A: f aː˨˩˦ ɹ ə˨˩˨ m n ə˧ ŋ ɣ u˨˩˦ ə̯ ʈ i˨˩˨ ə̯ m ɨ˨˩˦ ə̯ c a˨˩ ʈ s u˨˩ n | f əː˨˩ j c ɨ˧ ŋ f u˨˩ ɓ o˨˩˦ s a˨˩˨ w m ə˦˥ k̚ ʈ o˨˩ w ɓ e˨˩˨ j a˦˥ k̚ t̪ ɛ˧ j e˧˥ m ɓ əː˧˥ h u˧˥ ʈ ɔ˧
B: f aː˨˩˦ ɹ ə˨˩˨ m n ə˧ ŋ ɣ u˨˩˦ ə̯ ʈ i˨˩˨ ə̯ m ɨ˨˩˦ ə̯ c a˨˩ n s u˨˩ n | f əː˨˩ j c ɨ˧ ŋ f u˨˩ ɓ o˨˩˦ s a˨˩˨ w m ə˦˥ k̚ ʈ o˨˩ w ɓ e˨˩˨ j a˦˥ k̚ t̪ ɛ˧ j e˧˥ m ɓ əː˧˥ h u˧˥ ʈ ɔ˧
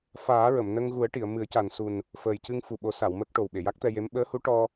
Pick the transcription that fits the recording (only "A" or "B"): B